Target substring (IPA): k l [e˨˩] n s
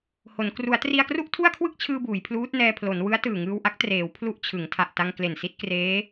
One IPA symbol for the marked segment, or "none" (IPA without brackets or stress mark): e˨˩